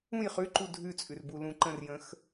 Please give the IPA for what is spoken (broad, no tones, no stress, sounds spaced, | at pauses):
ũ j χ ʉ ǃ u dʱ ʉ t͡sʼ ʉ r b u l ũ ǃ ə̃ r j ə̃ x